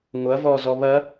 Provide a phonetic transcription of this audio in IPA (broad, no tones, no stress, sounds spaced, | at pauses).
ŋʷ ɐ v ɔ z ɔ β ɐ